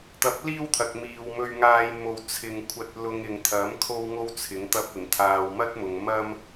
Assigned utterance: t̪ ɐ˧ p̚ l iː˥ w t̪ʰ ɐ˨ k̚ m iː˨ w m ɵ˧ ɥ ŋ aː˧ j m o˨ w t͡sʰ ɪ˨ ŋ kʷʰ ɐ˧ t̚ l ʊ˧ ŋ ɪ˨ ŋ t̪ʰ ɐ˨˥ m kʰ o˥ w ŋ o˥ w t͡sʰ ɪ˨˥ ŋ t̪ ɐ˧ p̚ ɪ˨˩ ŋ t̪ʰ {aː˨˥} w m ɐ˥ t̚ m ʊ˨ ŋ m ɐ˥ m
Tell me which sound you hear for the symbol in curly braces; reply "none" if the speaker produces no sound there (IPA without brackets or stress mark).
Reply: aː˨